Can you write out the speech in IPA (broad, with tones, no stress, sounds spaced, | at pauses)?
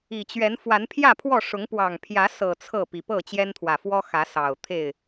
i˨˩ t͡ɕ ɥ ɛ˨˦ n f w a˨˦ n pʰ j ä˥˨ pʰ w ɔ˥˨ ʂ ʊ˨˦ ŋ p w ɑ˨˩ ŋ pʰ j ä˨˦ s ɤ˨˩ t͡sʰ ɤ˥˨ p i˨˩ p ɤ˥˨ t͡ɕ j ɛ˦ n t̪ʰ w ä˨˩ f w ɔ˦ x ä˨˦ s ɑ˨˩ ʊ̯ t̪ʰ e˥˨ ɪ̯